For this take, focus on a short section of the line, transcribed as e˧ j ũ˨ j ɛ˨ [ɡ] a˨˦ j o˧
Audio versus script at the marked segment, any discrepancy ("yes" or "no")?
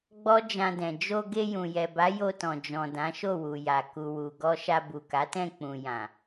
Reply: yes